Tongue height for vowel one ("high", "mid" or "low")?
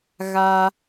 low